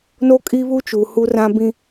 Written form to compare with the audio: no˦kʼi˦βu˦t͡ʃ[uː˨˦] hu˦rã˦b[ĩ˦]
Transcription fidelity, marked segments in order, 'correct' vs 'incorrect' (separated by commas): incorrect, correct